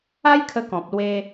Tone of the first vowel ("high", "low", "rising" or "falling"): high